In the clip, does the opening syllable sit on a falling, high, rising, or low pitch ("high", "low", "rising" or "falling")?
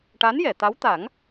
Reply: rising